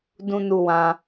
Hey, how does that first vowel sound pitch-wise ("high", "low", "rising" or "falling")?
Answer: high